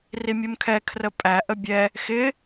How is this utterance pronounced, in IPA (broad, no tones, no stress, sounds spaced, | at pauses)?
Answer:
r i mʲ u m kʰ ɛ kʰ r ə pʼ æ ʔ ə bʲ ɛ | x ɪ